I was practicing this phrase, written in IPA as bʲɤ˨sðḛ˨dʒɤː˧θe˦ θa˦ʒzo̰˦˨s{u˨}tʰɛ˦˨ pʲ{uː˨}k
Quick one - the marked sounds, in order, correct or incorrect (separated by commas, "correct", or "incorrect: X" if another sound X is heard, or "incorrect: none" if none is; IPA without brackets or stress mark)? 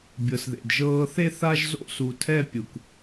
correct, incorrect: u˨